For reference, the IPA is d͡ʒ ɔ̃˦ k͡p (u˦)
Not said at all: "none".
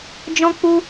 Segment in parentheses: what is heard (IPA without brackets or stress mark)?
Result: u˦